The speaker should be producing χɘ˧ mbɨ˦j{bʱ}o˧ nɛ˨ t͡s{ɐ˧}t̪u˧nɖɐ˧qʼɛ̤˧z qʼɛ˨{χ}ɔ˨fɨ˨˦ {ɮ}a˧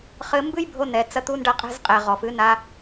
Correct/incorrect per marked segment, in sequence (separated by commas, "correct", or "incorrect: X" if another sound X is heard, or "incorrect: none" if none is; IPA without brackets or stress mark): correct, correct, incorrect: ʁ, incorrect: n